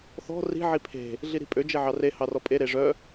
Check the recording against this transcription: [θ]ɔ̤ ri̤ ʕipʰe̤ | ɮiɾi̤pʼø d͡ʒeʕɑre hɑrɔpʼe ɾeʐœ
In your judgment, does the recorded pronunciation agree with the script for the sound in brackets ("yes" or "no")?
yes